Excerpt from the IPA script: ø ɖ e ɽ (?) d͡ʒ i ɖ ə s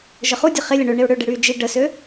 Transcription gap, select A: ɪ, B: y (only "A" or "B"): B